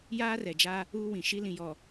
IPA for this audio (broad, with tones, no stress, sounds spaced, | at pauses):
j aː˦ r ɛ˨ d͡ʒ a˦ | uː˦ w ĩ˨ ʃ i˦ l ĩ˨ j ɔ˨